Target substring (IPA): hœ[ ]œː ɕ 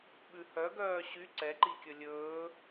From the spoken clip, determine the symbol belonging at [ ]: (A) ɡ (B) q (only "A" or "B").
A